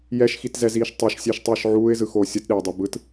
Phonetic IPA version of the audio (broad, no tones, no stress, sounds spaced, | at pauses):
j ɛ ʃ x i t z ɛ z iː ʃ tˤ i ʃ sʲ ɛ ʃ tˤ ɯː ʃ ʕ uː ɪ̯ z ɯ x oː sʲ ʌ t ɗ e ʊ̯ dˤ o b ɯ t